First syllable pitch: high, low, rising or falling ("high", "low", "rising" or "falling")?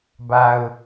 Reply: low